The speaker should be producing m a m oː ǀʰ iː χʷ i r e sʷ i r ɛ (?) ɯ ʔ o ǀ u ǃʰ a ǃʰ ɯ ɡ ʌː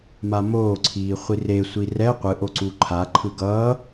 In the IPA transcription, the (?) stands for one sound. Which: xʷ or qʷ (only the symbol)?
qʷ